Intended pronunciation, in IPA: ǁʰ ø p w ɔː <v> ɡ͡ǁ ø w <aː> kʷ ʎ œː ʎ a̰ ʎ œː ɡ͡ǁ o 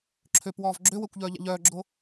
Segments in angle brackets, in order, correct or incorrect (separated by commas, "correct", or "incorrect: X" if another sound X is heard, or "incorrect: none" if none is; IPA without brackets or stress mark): correct, incorrect: əː